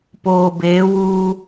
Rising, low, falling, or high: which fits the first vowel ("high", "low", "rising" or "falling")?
low